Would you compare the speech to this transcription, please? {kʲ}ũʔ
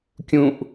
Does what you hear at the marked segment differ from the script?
no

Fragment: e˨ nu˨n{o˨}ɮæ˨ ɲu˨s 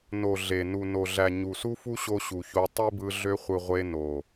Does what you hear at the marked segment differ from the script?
no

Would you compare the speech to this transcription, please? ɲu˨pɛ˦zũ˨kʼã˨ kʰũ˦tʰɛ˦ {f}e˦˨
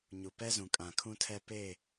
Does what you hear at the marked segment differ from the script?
yes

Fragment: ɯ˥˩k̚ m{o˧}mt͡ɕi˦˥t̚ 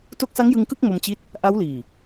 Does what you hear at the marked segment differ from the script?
no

